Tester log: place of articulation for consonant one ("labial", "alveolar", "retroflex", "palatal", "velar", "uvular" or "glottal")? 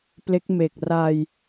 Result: labial